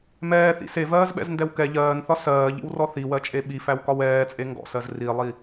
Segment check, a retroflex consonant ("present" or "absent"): absent